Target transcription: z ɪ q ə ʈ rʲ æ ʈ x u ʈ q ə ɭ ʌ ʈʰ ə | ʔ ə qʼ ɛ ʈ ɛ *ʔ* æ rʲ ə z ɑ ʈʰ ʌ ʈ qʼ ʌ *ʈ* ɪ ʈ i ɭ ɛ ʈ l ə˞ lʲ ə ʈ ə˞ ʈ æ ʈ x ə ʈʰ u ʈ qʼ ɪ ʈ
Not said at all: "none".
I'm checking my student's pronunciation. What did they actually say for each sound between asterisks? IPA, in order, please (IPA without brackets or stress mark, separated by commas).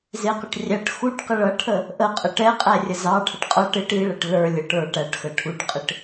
qʼ, ʈ